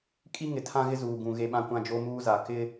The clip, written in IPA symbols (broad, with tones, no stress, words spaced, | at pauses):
kʼi˦ŋɪ˨tʰã˦ɣɪ˦ zuː˨ ɡũ˨ ɣe˦ ɓã˦kʷã˦ d͡ʒo˦muː˦za˨ kɪ˦